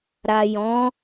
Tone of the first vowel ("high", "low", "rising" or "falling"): low